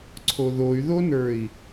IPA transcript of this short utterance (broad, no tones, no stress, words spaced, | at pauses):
ǀʰoðoy̯ðonə˞i̯